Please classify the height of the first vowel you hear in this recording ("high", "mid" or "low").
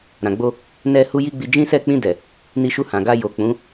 low